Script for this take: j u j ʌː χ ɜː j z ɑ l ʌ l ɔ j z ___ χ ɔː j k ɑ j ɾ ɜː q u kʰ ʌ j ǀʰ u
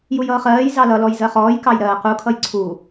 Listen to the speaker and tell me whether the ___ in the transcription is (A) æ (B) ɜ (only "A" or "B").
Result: B